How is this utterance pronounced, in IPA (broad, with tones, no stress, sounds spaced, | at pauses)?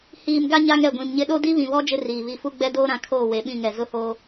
h iː˨ m ɡ a˦ ɲ a˦ ŋ ɛ˨ ɡʷ ĩ˨ m ɲ ɪ˦ ɗ o˦ d i˦ β ĩ˨ β ɔ˦ d͡ʒ ɪ˦ r iː˨ β i˨ f u˦ ɡ͡b ɛ˦ d oː˦ ɾ ã˨˦ kʰ oː˦˨ w e˨ ɓ ĩ˦˨ ŋ ɛ˨ z ʊ˦ h oː˦